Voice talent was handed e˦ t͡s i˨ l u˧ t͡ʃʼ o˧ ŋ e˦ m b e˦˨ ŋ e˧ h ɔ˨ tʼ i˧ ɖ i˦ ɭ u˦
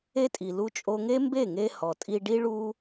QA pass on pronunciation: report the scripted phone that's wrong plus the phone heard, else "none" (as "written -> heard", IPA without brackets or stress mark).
t͡s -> tʼ